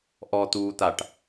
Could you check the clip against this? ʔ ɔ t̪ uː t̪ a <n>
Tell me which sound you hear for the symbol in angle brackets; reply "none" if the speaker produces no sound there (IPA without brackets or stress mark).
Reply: ʈ